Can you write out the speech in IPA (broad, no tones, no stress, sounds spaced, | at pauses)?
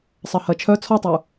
sˤ ɜ h ɜ t͡ʃʰ œ t͡sʰ ɔ tˤ u